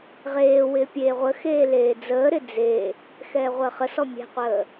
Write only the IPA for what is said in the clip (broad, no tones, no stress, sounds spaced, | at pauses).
ʁ eː w ɪː pʲ eː ʁʷ ə x eː l eː d͡z əː ɾ ɪ d͡z e | x ɛː ʁʷ əː χ ə s ɔ mʲ ɛ̤ qʷ əː